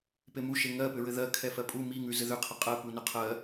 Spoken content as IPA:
p e m u ʃ e ŋ ɜ p ʏ ɹ ɘ ð ɜ kʰ ɛ f ɜ pʼ u m i ŋ ʉ z ɘ ð ʏ qʰ ɘ qʼ ɜ p u n ʏ qʰ ɜ

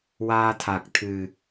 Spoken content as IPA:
w aː˧ t̪ʰ a˨˩ k̚ t̪ʰ ɨ˨˩

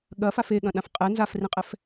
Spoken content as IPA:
ɠ ɐ f a f e ɠ ɐ̃ ɗ ã f qʼ ɛ n z a f r ĩ qʼ ɛ f

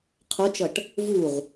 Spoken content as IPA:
qʰ o t͡ʃ ʌ ʈ | v u ʁ

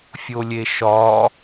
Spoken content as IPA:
fʲ o lʲ e ʃ ɒ

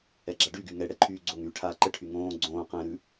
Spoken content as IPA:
ɛ ɡ͡ǁ a ɖ y ɡ y ŋ ɛ ɽ ɛ ǃʰ yː ɡ͡ǀ o ŋ yː ʈʰ aː ǃ ə ʈʰ y ŋ õː ɡ͡ǀ õː q ɛ̃ ɾ ʉ

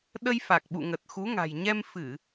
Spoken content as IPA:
ɗ ə˧ j f a˨˩ k̚ ɓ ṵ˧˨ ŋ ə˨˩ t̚ x u˨˦ ŋ a̤˨˩ j ɲ ɛ˧ m f ɨ˧˩˨

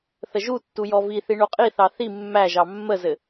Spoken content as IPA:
θ ə ʒ u tː u j ɔ v i θ i ɳ o qʼ i θ ɑ θ i mː æ ʒ ɑ mː ə z ɘ

